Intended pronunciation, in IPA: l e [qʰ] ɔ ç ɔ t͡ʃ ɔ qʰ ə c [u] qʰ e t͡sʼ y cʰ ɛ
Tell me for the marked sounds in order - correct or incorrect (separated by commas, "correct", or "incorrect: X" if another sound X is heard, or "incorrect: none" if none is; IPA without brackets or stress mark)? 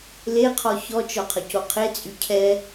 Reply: correct, incorrect: o